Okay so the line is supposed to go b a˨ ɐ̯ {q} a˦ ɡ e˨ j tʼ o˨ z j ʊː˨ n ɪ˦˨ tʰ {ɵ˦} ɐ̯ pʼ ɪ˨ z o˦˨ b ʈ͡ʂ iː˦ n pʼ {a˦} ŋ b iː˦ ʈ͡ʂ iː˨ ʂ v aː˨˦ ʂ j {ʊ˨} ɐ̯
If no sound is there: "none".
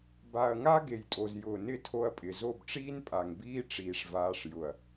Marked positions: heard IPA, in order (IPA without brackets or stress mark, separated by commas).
ŋ, o˦, a˨, ʊ˨